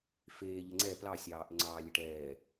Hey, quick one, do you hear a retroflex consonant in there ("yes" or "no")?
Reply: yes